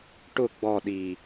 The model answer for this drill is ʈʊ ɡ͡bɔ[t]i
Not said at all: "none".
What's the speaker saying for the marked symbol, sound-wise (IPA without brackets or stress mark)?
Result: ɗ